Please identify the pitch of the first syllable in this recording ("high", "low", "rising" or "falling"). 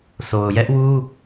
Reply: low